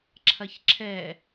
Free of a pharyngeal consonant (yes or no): yes